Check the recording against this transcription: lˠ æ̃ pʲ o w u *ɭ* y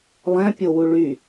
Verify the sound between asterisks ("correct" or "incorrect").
correct